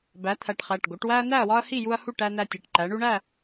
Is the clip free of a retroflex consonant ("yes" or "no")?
no